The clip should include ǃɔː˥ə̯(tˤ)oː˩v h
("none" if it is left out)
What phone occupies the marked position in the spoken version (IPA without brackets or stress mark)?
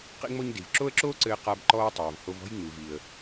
tˤ